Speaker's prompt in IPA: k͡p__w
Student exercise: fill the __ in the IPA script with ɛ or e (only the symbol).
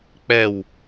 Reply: ɛ